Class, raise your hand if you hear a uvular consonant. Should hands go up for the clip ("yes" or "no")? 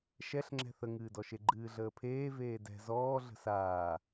no